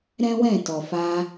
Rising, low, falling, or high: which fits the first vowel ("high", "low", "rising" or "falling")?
high